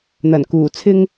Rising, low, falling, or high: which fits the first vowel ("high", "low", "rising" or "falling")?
low